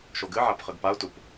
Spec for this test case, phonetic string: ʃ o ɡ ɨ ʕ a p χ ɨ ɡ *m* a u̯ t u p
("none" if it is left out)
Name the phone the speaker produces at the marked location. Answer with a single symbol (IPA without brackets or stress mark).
p